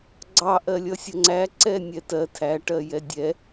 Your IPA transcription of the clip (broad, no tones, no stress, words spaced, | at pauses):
ɡ͡ǀɑ ʔɜlʲʌsʲʌŋ͡ǀæ ǀɛnʲɛtɜ tʰæ ʈɜjɛdʲɛ